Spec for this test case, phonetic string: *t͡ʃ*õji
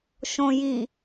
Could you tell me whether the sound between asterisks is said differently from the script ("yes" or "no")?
yes